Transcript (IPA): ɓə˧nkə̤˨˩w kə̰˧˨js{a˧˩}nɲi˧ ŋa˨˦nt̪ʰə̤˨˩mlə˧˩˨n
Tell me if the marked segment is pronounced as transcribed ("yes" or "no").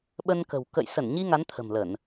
no